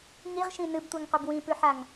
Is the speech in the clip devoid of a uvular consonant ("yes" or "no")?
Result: no